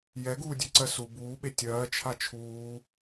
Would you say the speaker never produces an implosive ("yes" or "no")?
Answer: no